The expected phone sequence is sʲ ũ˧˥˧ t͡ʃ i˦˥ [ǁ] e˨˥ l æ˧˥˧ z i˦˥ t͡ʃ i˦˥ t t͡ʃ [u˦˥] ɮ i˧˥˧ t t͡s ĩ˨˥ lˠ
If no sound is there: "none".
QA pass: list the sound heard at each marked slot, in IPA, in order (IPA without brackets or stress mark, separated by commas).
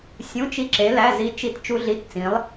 ǁ, u˦˥